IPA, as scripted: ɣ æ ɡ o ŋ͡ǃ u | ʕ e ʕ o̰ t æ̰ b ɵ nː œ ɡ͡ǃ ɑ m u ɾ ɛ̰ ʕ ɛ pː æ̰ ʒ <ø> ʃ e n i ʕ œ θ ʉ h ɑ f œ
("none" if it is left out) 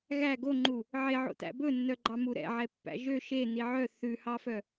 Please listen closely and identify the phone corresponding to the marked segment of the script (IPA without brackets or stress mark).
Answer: ø